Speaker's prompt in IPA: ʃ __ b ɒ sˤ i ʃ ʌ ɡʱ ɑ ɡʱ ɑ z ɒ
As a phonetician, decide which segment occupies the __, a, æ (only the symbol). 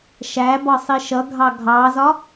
æ